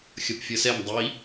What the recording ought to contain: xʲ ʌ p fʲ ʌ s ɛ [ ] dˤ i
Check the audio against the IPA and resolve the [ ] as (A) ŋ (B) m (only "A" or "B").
B